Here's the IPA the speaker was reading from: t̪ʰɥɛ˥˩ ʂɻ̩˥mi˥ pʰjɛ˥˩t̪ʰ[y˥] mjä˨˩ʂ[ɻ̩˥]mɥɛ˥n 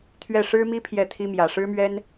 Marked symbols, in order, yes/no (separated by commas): no, yes